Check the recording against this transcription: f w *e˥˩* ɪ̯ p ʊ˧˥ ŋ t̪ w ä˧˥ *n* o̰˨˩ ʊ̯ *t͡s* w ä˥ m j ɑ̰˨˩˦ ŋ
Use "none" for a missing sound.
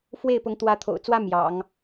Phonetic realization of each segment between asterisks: e˥˩, t̪ʰ, t͡s

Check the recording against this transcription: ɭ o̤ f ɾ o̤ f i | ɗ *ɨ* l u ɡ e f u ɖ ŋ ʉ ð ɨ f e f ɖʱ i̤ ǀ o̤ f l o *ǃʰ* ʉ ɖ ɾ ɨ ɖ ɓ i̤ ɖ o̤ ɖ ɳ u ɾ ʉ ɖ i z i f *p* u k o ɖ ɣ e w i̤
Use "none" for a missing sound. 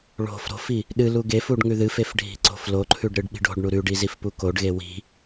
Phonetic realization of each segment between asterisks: ɨ, ǃʰ, p

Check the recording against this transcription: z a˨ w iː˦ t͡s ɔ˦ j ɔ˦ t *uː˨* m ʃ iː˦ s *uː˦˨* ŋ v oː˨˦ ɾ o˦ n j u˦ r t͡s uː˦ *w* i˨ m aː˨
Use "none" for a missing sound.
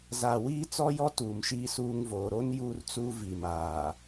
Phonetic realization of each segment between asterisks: uː˨, uː˦, v

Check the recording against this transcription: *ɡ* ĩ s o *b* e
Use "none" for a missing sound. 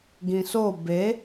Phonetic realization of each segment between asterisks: ɡ, b

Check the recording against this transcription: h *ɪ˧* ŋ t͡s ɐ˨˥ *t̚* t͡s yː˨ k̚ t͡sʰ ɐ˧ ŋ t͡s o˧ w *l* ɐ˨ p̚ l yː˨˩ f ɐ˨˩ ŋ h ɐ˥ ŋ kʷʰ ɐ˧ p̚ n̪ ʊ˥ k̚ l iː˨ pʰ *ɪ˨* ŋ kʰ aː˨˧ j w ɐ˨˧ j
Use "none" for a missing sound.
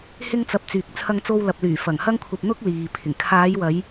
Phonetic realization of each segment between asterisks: ɪ˧, p̚, l, ɪ˨˩

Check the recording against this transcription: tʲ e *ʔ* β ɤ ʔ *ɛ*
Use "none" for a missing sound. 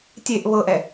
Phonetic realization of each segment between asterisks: ʔ, ɛ

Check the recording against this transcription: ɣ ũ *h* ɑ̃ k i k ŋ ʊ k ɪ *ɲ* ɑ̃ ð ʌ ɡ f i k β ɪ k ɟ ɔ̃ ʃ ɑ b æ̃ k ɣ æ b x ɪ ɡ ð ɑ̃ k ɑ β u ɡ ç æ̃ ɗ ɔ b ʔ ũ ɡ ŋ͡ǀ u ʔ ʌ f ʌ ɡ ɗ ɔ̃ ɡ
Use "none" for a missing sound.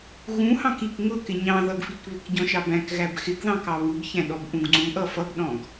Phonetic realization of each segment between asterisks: h, ɲ

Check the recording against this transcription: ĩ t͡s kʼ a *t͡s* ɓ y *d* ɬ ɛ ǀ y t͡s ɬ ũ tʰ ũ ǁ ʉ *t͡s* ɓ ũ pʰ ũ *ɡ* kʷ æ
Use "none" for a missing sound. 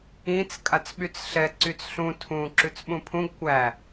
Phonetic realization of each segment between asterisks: t͡s, t͡s, t͡s, ɡ

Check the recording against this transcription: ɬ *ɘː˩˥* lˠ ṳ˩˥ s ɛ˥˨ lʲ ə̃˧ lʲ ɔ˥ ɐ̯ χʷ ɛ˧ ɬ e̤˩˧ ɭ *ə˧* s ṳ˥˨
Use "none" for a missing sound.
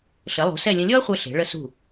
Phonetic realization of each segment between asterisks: ɘ˩˥, ə˧

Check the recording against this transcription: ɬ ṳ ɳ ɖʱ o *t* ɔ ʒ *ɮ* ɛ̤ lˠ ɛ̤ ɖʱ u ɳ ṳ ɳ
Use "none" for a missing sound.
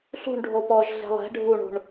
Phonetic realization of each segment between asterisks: p, ɮ

